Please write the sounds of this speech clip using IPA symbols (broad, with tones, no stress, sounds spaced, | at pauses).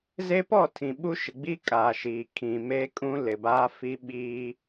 z e˦ p ɔ˦˨ tʰ ĩ˨ ɓ u˦ ʃ ɪ˨ ɡ͡b i˦ kʼ a˨ ʃ iː˨ kʰ ĩ˨ m e˦ kʼ ũ˦ l ɪ˨ b aː˦ f i˦ ɓ iː˦